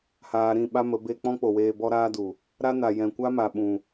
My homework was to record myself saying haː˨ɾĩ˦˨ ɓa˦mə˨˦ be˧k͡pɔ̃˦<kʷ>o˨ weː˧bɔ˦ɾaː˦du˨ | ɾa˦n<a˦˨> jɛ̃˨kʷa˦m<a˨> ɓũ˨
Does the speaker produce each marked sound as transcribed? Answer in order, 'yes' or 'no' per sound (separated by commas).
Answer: no, no, yes